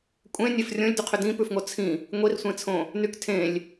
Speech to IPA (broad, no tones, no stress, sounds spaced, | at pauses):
kʷʼ ẽ nʲ e f rʲ õ lʲ d y qʰ ʏ d ĩ p ʉ f ŋ o t͡sʰ ĩ | ŋʷ i r sʷ ẽ t͡sʰ õ | n y k tʰ ẽ lʲ